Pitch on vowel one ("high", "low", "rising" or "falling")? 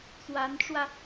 rising